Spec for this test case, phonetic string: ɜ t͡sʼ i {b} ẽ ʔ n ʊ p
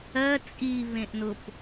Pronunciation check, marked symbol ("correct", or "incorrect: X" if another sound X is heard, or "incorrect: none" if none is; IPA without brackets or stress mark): incorrect: β